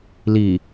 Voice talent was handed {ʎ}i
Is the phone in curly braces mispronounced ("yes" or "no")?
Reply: yes